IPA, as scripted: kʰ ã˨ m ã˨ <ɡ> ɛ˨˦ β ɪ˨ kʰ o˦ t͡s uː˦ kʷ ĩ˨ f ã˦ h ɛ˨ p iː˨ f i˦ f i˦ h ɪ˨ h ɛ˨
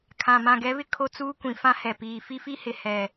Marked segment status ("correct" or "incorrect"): correct